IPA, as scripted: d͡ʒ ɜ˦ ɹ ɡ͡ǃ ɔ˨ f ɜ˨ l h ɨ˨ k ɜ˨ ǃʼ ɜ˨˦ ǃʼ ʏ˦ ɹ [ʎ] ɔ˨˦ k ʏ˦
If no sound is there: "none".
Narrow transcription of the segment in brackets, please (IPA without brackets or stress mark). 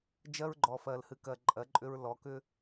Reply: l